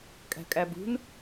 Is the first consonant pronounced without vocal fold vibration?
yes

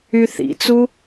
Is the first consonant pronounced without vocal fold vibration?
yes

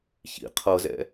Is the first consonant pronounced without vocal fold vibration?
yes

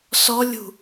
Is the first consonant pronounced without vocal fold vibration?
yes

